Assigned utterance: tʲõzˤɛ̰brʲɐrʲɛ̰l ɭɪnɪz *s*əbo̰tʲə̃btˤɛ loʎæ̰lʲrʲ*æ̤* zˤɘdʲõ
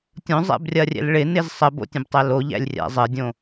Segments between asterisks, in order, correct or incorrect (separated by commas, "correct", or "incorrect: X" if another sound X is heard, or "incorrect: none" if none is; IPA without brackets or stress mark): incorrect: sˤ, incorrect: æ̰